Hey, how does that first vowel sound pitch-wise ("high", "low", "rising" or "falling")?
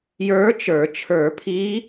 rising